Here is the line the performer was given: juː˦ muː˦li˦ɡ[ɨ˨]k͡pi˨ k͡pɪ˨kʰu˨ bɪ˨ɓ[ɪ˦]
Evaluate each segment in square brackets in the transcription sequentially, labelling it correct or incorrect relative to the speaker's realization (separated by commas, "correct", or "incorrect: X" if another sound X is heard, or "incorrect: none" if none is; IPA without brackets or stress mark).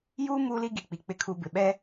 incorrect: i˨, incorrect: ɛ˦